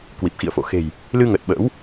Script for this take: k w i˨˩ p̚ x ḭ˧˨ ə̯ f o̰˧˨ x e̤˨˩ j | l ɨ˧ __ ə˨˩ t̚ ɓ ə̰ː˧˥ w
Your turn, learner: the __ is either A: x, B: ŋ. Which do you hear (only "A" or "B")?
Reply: B